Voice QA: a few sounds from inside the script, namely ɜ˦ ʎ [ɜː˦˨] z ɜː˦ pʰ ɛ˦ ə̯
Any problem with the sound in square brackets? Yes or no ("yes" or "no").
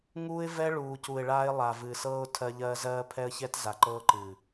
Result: yes